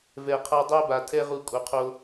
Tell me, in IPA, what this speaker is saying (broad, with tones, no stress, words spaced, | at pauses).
vɛ˨qʰa˧dˤɛ˦ ba˨tʰɛ˦ʁu˧ kʼo˨qʰo˧